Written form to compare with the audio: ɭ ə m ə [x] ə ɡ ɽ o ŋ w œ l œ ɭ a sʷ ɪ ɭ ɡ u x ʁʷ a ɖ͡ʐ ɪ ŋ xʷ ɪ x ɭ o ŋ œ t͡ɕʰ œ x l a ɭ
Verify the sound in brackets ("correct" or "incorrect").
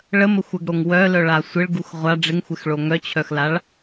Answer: incorrect